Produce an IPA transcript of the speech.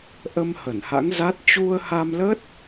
ʔə˧m hə˧˩nha̰˧˥ŋza˦˥t̚ t͡ɕu˧ə̯ha˧mləː˦˥t̚

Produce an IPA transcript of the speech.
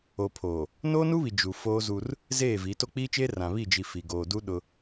o˨pʰoː˨ | noː˦nu˦βi˨ d͡ʒu˨foː˦zu˦r | zeː˦˨vi˨˦ to˦k͡piː˦t͡ʃeː˦ rã˨βi˦˨d͡ʒi˨ fi˨ɡoː˨du˦ɗʊ˦

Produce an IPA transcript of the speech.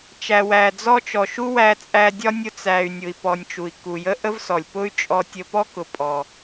t͡ʃæ˩wæ˩d͡zɔ˧t͡ʃɔ˩ ʃu˥wæ˧t͡sʼæ˧dʲɒ˥ nʲʊ˧t͡sæ˩y̯nʲʊ˩i̯pɔ˩nʲ t͡ʃu˩i̯ ku˩jə˥ʔə˥vsɔ˩lʲ pʊ˥y̯t͡ʃʼɔ˧ tʲə˧pɔ˥kʊ˩pʼɔ˩

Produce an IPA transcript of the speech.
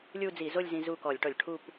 lʲu˥˧ d͡zi˧˩˧zo˥˧lʲzĩ˧ zu˥˩ kɔ˧˩˧lʲʈɔ˧˩˧lʲʈʰu˥˧p

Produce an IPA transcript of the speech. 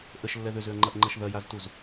ʔəʃlːɛ ðʏzʏɐ̯ŋ͡ǃɐʔŋ͡ǃɐʃ ðɐjaztuz

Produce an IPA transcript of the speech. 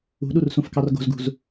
ṳɗursũfkɑr ɡo̤zɡṳz

